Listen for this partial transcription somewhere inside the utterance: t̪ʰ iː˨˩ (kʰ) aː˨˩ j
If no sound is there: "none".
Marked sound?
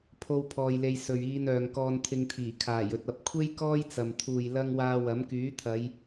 kʰ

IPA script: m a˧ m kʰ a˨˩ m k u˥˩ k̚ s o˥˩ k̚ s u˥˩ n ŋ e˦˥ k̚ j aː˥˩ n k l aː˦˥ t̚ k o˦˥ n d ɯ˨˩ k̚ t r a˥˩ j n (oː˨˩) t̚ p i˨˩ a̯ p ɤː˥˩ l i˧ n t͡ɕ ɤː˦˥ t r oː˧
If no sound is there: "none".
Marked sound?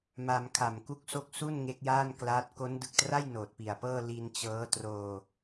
oː˨˩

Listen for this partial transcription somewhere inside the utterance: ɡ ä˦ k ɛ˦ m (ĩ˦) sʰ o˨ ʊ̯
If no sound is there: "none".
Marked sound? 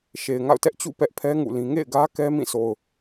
ĩ˦˨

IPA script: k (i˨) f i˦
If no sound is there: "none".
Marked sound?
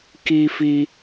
i˦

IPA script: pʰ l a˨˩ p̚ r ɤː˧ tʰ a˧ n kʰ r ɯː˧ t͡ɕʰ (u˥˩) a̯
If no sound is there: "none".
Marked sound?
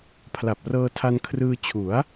u˩˦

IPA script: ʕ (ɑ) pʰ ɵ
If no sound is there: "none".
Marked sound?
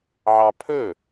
ɑ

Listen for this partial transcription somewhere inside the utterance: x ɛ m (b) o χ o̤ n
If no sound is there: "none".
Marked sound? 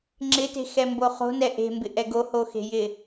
b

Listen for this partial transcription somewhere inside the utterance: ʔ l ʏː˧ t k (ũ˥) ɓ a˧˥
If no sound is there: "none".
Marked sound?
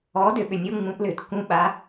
ũ˥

